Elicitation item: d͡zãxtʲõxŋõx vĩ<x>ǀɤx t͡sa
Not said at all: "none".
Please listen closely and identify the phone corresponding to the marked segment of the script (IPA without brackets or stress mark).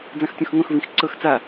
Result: x